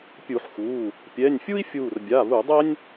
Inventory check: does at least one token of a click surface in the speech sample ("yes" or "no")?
no